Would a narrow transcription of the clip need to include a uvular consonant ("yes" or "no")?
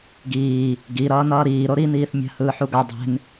no